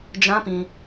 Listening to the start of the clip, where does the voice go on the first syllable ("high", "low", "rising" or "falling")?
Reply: high